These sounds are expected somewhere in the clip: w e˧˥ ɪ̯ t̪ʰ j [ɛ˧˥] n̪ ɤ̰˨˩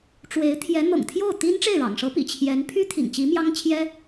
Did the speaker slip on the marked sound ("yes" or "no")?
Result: no